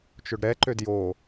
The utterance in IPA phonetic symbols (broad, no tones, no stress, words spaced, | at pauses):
t͡ʃʊɖɾɛ ǃødjo